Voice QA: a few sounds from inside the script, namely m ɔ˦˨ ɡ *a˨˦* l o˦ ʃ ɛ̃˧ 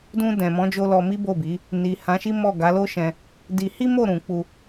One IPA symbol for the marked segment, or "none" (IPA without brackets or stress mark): a˨˦